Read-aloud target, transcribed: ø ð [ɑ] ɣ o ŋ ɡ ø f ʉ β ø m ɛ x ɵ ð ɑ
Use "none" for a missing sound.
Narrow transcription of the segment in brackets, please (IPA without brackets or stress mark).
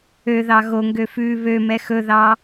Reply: ɑ